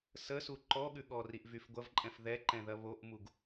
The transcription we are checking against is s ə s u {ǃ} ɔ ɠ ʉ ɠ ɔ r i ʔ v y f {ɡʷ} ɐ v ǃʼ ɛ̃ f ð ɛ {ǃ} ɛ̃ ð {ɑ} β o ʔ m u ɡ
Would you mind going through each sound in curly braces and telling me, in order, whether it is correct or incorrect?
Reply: correct, correct, correct, incorrect

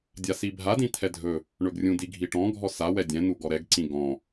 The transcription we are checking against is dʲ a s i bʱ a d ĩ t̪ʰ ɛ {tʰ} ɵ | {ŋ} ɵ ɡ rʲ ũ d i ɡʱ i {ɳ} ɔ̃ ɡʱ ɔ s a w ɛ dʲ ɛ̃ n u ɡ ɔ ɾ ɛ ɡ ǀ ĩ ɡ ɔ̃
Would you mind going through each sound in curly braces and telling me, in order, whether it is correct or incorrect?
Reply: incorrect, incorrect, incorrect

